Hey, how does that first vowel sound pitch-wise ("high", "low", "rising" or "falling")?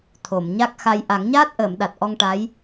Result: low